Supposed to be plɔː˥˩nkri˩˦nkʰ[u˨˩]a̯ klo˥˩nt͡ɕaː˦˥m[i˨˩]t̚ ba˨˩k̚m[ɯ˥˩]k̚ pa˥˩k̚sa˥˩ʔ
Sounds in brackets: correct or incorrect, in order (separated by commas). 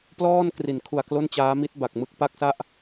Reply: correct, incorrect, correct